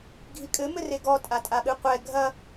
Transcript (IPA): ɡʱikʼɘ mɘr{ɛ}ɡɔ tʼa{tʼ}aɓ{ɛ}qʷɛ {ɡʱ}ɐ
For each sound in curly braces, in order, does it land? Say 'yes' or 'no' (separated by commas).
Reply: no, yes, no, yes